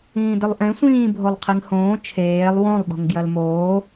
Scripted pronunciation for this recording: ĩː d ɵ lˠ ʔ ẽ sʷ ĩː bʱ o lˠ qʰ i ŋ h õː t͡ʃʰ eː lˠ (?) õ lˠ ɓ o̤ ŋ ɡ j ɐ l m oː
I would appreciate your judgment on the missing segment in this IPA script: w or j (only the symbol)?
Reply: w